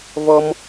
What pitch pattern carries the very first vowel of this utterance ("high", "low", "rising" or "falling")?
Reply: high